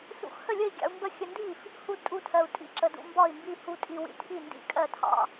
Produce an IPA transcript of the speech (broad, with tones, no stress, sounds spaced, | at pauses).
s ṵ˧ x h ə˥˩ lʲ ə˥˩ i̯ ɡʲ ɑ̰˧ u̯ m b ə˥˩ xʲ ə˧ n d i˥˩ f | h u˧ d tʼ u˧ tʰ ɜ˧ u̯ tʼ ḭ˥˩ ǁ ə˧ d ṵ˧ m b ɒ˥˩ i̯ m b i˥˩ h u˧ tʼ i˧ w ḭ˧ tʰ i˥˩ n d ḭ˥˩ kʼ ɜ˥˩ tʰ ɑ̰˧